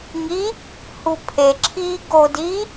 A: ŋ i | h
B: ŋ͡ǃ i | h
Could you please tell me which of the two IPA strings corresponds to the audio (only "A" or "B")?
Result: A